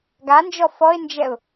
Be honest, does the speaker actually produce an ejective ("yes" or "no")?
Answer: no